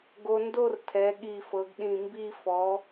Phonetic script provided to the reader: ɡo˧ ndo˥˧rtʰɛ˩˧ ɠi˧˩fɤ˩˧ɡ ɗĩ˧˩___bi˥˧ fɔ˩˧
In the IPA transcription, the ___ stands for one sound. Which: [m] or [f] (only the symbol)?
m